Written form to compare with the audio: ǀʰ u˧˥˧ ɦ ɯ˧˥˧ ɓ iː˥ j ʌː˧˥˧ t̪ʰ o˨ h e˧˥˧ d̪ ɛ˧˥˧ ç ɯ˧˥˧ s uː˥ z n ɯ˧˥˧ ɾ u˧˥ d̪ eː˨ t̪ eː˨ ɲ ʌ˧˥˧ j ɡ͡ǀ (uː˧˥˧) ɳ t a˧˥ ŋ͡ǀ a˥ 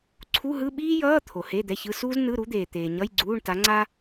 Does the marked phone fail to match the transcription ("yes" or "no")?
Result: no